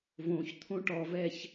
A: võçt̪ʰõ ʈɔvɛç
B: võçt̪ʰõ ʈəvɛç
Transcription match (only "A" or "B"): A